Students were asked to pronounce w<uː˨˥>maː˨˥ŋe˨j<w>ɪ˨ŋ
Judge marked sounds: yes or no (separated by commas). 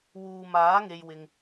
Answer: no, yes